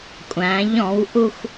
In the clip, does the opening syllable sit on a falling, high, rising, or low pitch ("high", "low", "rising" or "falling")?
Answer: rising